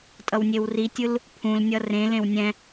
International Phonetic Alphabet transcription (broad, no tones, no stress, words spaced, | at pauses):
tʼʌwnʲewritʲɯl | pʰũlnʲʌ rẽlẽw nʲɛ̃